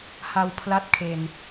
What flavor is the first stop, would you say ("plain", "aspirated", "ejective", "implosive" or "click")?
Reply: aspirated